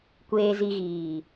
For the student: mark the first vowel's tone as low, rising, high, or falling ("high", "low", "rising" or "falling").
low